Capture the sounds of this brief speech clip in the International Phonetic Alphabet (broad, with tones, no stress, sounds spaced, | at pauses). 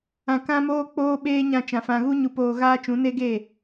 ã˧ k ã˦ m oː˦ k͡p oː˦ ɓ eː˦ ɲ ã˧ t͡ʃ ã˨ f ã˧ ɣ u˦ ɲ u˧ p oː˧ ɣ aː˦ t͡ʃ ũ˨˦ n e˦ ɡ e˦˨